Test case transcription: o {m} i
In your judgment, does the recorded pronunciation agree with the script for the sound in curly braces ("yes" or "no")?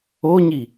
no